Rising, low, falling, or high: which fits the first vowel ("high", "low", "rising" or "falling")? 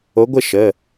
rising